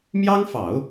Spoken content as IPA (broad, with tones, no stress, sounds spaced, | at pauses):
m j ɑ˥ ŋ f ɑ˨˩˦ ʊ̯